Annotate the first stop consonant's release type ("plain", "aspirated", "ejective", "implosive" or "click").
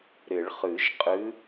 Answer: ejective